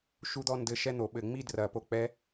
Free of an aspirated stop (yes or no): yes